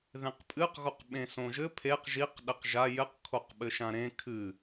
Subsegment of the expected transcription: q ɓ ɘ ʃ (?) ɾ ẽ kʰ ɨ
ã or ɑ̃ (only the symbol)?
ã